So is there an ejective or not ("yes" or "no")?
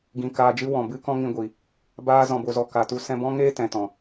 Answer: no